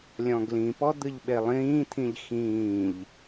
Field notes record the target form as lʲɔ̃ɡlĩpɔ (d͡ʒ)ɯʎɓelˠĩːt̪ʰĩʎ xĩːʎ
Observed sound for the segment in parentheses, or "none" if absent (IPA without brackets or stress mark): d̪